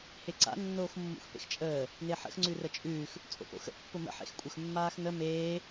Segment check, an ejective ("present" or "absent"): present